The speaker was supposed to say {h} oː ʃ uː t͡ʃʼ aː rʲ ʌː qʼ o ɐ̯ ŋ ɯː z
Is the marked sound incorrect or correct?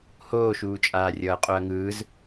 correct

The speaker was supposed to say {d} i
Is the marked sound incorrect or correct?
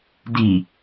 correct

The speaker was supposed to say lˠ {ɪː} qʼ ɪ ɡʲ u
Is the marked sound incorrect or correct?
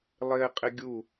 correct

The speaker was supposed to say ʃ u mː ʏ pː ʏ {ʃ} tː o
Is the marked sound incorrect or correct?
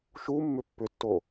incorrect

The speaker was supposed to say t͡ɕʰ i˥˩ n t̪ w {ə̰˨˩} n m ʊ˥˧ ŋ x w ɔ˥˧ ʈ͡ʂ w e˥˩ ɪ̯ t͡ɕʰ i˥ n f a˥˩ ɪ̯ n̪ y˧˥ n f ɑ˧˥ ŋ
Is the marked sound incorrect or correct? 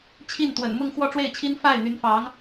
correct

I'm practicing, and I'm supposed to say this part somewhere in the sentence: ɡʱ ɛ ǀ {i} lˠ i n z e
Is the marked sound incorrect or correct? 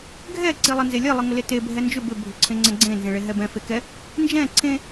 correct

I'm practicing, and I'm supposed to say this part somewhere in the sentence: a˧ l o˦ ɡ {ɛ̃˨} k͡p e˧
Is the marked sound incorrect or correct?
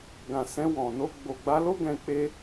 incorrect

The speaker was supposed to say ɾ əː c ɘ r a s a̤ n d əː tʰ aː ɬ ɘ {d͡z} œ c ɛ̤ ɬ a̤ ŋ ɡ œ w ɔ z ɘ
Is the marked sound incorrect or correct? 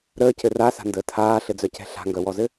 correct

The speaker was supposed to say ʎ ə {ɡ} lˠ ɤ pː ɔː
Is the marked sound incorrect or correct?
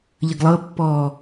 correct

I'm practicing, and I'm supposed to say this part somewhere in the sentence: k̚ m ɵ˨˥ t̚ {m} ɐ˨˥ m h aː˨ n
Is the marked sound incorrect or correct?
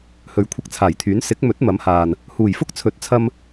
correct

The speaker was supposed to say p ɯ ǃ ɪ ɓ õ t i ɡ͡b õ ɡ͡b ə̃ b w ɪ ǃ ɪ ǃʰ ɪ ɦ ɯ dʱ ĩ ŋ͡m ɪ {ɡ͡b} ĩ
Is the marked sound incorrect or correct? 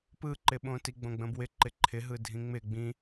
correct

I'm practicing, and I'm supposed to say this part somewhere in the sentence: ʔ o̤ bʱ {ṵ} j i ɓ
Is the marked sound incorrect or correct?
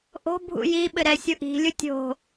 correct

